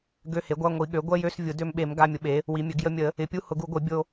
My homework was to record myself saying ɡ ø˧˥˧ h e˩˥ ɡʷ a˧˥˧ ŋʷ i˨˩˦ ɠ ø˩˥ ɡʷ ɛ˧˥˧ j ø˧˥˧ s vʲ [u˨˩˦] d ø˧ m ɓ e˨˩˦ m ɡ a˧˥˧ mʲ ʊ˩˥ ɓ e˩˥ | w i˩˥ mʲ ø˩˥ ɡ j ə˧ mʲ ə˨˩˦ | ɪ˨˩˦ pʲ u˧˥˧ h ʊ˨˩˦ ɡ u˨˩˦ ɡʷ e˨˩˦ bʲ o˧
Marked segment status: incorrect: ʊ˨˩˦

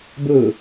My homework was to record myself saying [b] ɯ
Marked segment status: correct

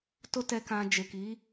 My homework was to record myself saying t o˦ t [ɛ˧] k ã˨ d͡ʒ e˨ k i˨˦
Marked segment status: correct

